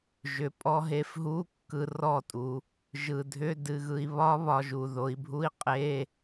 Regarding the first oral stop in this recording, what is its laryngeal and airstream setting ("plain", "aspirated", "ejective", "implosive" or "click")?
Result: ejective